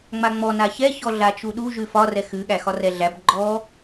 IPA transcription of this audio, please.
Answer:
ŋ͡m a ŋ͡m ɔ n a ç ɛ ç ɔ ɮ a t͡ʃ u ɗ u ʒ ʉ f ɒ r ɛ x ʉ ɠ æ x ɒ r ɛ ɮ æ b ɡ͡ǃ ɔ

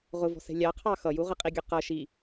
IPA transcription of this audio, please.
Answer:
ʁ ʊ v ɔ̤ s ɛ̤ lʲ ɑ qʰ ɑ x ʌ j u ʁ ə qʼ i ɡʲ ʊ q ʌ ʃ i

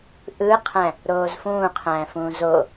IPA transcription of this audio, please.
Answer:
ʔ ɯ qʰ æ̃ | ɾ oː z f ũː qʰ æ̃ f ũː z o

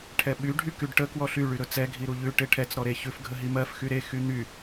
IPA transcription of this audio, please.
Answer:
ʈʰ ɛ ɓ y ɖʱ y k y ɖ ʈ ə k w ɔ ɬ y ɭ y ɾ ɵ t͡s ɛ ɡʱ i ɾ u ʎ ʉ ʈ e ʈʰ ɛ t͡s ɾ ɔ ɾ e ç ʉ f ɡʱ ə ɦ i m ɜ f x y ɾ e x y n̪ y

